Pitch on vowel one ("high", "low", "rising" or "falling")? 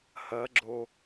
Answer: rising